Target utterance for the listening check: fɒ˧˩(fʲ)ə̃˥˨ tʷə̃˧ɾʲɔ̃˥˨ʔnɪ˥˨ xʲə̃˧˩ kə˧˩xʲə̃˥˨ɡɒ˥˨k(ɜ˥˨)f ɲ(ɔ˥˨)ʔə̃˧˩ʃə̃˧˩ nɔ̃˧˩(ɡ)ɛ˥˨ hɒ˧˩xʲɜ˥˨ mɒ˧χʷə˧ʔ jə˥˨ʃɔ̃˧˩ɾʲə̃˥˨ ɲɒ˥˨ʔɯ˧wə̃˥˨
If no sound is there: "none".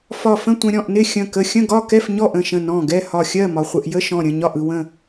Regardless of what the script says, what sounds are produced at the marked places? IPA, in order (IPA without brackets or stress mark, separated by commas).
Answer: f, ɛ˥˨, ɔ˥˨, ɡ